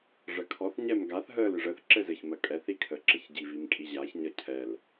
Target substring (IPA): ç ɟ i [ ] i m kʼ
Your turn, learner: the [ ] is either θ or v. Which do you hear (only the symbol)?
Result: v